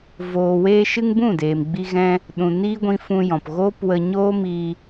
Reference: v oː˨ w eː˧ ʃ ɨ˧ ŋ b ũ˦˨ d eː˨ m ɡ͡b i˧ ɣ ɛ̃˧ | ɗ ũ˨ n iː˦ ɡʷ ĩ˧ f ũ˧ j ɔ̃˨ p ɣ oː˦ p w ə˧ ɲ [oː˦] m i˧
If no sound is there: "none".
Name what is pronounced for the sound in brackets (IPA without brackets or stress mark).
oː˦